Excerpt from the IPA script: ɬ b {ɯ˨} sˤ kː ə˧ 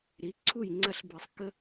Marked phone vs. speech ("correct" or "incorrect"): correct